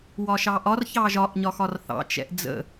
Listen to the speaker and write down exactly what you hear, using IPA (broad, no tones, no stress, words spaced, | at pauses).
wɒʃɑʔɒr çɑʒɒʔ ɲɒxɒrθɑ̰ t͡ʃɛ̰ʔd͡zə̰